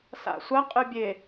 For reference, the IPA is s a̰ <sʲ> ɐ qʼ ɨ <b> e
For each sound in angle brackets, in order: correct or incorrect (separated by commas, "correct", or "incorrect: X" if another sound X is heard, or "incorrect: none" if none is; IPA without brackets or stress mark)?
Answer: incorrect: sʷ, incorrect: bʲ